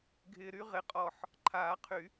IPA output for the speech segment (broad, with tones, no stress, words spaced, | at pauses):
ɡʱɪː˧ɾy˥ ʁɪ˧qʼɔː˧˩ħ | ǃʰaː˨˩˦qʰy˨˩˦